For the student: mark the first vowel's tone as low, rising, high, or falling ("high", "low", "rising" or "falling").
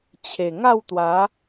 low